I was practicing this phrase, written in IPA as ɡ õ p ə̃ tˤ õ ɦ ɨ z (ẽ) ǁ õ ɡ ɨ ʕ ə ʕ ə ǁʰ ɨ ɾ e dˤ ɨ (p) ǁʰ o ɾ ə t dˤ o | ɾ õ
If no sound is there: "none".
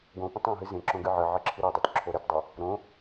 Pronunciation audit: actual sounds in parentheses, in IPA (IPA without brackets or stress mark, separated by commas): ẽ, t